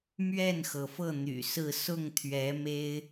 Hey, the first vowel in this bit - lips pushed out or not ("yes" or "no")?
no